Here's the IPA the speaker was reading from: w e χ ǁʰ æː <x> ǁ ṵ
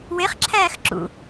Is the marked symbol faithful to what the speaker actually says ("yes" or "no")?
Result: yes